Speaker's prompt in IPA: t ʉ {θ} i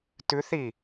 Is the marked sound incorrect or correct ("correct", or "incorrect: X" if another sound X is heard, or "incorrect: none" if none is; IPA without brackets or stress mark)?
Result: correct